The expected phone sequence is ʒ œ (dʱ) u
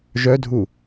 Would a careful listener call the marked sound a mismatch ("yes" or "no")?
no